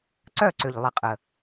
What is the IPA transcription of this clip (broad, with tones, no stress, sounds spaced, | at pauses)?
ǀ œ˦˨ ǀ ʏ˨ ʎ lˠ ɪ˨ qʼ ə˨